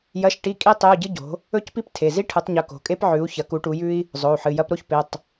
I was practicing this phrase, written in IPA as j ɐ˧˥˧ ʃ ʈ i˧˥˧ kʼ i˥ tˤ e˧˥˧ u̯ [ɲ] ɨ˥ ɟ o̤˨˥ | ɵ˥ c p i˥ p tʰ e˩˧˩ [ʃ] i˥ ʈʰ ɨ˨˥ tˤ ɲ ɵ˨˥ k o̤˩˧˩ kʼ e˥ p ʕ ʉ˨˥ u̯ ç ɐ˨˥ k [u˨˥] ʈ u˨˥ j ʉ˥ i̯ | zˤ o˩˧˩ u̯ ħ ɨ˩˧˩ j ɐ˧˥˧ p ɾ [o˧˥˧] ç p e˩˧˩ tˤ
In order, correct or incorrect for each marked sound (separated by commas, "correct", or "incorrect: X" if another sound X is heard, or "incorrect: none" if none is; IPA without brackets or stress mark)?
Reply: incorrect: ɟ, incorrect: z, correct, incorrect: o˥